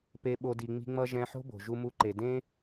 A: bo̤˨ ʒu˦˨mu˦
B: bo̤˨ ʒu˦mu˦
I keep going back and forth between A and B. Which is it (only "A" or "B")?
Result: B